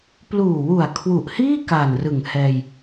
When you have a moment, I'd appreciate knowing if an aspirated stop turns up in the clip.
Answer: yes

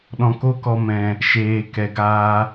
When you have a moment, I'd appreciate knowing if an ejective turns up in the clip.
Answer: no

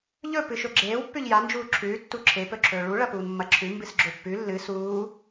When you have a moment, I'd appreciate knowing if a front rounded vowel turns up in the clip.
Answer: no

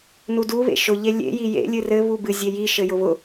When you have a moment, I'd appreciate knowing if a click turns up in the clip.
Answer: no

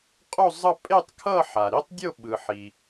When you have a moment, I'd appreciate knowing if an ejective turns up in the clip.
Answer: yes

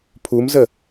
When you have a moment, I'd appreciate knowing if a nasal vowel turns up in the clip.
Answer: no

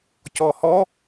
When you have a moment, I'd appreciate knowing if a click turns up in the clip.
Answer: no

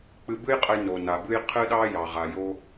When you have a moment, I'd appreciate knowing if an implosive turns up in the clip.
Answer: yes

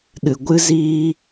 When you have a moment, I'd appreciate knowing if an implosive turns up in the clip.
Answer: yes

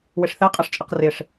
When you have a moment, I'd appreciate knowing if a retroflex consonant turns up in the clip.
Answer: yes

